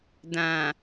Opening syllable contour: low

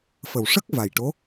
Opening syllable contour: low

